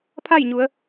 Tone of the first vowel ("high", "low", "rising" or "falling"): falling